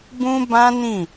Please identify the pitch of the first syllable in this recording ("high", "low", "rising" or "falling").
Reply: high